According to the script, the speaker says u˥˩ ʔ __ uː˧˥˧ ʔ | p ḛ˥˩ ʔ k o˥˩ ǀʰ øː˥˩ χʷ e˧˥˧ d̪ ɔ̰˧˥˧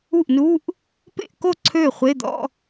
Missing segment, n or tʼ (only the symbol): n